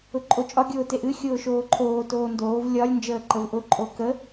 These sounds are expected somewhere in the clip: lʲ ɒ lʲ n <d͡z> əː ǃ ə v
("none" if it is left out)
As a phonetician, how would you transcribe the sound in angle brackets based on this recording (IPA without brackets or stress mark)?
d͡ʒ